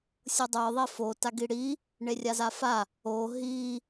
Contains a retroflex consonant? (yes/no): yes